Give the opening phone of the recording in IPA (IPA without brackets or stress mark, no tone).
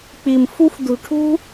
k͡p